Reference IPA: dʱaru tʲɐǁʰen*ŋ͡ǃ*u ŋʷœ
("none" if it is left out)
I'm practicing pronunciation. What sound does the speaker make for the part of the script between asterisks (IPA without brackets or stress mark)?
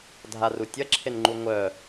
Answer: ŋ͡ǃ